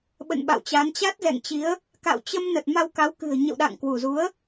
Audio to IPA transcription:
ɓ ə̰˧˨ n ɓ a̰˧˨ w t͡ɕ a˨˦ n t͡ɕ a˦˥ t̚ z ɛ̰˧˨ ŋ t͡ɕ i˨˦ ə̯ | k a̰˧˨ w t͡ɕ ə˧ m n ə˨˩ t̚ m a˧ w k a˨˦ w k ɨ̤˨˩ ə̯ ɲ ə̰˧˨ w ɗ a̰˧˨ ŋ k w u˧˩ z u˨˦ ə̯

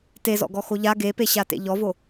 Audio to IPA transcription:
t e z ɔ̰ ɡ ɔ x o ʎ a ɡ e p e ɕ a t ḛ ʎ ɔ v o

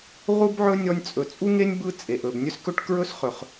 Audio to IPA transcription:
ʁ u˦ b ʕ ɵ˦ nʲ ɔ˧ nʲ t͡sʼ ɵ˨ t͡sʼ u˦ ŋ e˦ nʲ b ɯ˦ t͡sʼ e˨ ʔ ɵ˨ b nʲ ɵ˦ s k ɵ˦ ʈ k ɹ ɵ˦ s χ ɵ˨ χ

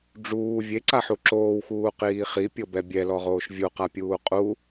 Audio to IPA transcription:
ɖ͡ʐ uː vʲ e ǀ a ħ u ǁ oː w x uː q iː χ i pʲ ɤ b ɛ bʲ ɛ l ɔ ʁ oː ʃ vʲ u q a pʲ uː qʼ u

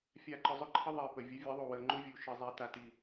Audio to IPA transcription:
fʲ a˨ ǃ ʊ˨ zˤ ʊ˦ ǃʰ ə˦ ðˤ i˨ p ə˨ vʲ ə˨˦ vʲ ɘ˨˦ ðˤ u˨ w ə˨ ŋ͡ǃ u˦ vʲ u˨ ʃ ɘ˨ zˤ ɛ˨ t a˨ t i˨

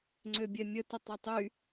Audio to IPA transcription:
ŋ͡ǀ ø bʲ ɛ mʲ ə t ə tˤ œ tˤ y

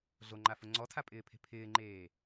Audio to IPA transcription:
ɮ o ŋ͡ǃ a f ʊ ŋ͡ǀ ɔ tʰ a pʼ ɪː pʰ e̤ pʰ ɪː ŋ͡ǃ eː

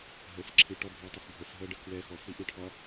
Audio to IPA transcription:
ɦ ə f ǁʰ ɨ ʈ ɒ bʱ ɒ ɐ̯ tˤ ə f bʱ ə f ɦ ɜ ɖ ə k w ɛ x ɔ f ɽ i ʔ ɨ ʈʰ ɒ

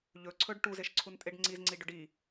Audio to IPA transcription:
ʎ ɵ ǀʰ ɵ ɖ ʈ u z e ʃ ǀʰ u n tʼ e ɖ ŋ͡ǀ i z ŋ͡ǀ i ɖ ɵ ɖ i

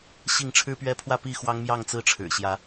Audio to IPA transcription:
ɕ i˥˨ ŋ ʈ͡ʂʰ ɻ̩˦ p ɥ ɛ˦ pʰ w ä˥˨ p i˥˨ x w ɑ˦ ŋ m j ɑ˥˨ ŋ t͡s ɹ̩˦ ʈ͡ʂʰ ɻ̩˨˩ ɕ j ä˨˦

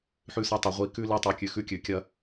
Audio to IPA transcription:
ħ ʉ˧ s ɐ˧ tˤ ɐ˩˧ ʁʷ i˩˧ k ʉ˧ l i˧ tˤ ʉ˩˧ kʲ ʉ˩˧ x ʉ˧ kʲ ʉ˩˧ kʲ ɐ˧

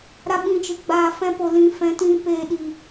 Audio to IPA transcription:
ɾ a˦ ɓ ĩ˧ t͡ʃ ɨ˨ ɡ͡b aː˧ f ɛ̃˧ p o˨ l ĩ˨ f ɛ̃˨˦ t ĩ˧ p eː˧ ɗ i˨

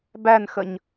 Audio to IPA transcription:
b æ n x ə ɲ

